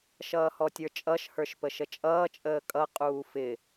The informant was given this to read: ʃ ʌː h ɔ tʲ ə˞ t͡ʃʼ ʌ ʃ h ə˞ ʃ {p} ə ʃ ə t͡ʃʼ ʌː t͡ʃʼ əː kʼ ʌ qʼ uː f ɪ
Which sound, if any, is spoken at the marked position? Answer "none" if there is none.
p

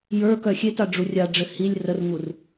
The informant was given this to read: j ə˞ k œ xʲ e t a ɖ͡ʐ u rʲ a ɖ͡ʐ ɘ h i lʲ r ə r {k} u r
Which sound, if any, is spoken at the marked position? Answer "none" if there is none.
ŋ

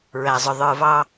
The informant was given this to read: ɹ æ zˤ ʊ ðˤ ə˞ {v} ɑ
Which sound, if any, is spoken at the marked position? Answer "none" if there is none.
v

